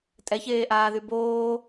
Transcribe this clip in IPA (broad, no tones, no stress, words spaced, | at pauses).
tʼɛçeːʔaːðy boː